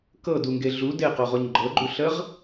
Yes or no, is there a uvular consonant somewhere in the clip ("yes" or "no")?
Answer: yes